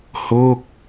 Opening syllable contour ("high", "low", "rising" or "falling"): falling